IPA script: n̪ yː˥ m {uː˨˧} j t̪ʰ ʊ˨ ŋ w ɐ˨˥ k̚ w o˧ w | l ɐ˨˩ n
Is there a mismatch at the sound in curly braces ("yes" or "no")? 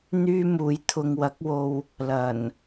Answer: no